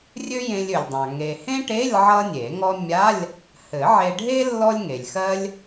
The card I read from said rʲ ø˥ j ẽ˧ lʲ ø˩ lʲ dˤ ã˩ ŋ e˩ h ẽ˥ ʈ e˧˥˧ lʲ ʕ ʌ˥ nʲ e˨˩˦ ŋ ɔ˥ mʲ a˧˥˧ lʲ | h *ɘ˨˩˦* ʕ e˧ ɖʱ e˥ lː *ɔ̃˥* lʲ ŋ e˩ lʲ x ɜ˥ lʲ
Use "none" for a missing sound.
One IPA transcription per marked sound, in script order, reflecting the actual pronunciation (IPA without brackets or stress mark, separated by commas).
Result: ɘ˨˩˦, ɔ˥